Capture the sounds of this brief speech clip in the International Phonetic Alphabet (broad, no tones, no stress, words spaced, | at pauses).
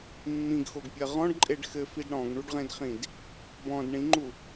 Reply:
mːĩɡxoɡpʲɜ ʁɔ̃ɖǃʼeɖ xɘfid ɽɔ̃ɡɳuɖʁẽdχĩd | bɔ̃d ɳĩŋ͡ǃu